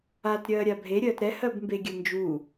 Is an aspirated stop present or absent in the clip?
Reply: absent